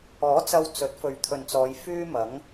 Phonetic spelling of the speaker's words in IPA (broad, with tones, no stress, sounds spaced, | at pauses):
ɔː˨˥ t͡s ɐ˧ w t͡s ɵ˨˥ t̚ f ɵ˨ ɥ t̪ʰ ɵ˨ n t͡s ɔː˨˧ j f yː˥ m ɐ˨˥ ŋ